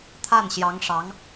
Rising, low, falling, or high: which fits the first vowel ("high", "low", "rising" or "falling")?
falling